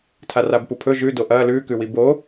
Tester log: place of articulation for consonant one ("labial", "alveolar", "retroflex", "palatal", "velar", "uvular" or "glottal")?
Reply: alveolar